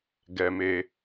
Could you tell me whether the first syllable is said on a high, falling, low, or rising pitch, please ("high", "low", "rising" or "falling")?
low